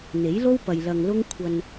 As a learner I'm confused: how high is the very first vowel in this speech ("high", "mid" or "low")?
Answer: mid